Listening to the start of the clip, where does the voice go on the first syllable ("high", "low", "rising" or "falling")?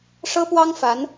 high